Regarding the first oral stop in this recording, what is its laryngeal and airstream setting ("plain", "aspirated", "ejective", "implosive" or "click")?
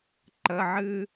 click